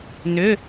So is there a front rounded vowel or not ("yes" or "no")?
yes